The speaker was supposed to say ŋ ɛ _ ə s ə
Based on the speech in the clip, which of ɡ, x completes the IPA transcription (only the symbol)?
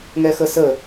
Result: x